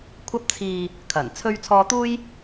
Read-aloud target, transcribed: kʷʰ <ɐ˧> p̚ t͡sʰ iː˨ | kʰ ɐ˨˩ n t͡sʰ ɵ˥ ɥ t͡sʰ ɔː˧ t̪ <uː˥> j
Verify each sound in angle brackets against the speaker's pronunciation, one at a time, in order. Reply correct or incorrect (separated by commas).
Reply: correct, correct